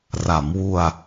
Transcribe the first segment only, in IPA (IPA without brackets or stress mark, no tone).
r